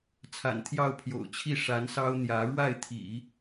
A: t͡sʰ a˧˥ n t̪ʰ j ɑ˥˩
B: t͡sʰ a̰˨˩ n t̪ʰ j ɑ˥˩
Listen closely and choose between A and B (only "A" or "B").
B